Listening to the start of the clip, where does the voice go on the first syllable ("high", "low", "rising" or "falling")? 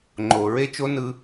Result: low